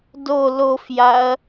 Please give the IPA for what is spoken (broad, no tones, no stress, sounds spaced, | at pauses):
d o l o f j a ɐ̯